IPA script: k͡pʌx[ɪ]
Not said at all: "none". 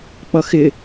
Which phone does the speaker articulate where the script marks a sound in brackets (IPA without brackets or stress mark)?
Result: ɪ